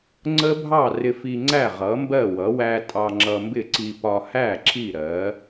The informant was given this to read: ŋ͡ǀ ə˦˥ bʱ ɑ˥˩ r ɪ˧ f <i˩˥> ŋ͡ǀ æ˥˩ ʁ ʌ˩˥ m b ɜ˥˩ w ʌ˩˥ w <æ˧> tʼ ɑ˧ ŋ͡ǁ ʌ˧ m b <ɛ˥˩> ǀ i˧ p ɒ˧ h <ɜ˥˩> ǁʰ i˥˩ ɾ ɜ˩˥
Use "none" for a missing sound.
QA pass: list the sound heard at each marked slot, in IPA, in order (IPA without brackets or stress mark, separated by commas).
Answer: i˧, æ˧, ɪ˥˩, æ˥˩